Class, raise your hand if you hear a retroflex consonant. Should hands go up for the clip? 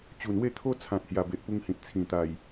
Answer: no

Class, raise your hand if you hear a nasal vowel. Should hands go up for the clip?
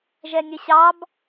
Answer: no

